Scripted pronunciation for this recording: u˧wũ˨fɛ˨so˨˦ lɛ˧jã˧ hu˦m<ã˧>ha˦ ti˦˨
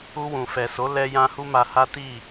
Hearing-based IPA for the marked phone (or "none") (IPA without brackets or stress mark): a˧